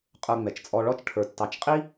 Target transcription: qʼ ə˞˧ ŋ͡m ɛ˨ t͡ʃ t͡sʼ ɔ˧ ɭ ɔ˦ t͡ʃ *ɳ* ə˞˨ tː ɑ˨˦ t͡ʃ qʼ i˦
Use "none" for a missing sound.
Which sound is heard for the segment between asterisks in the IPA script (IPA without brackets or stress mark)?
ʈʰ